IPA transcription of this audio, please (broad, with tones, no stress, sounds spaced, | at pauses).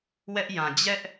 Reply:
w ɛ˦ ʔ j ã˨ d͡ʑ ɛ˦ ʔ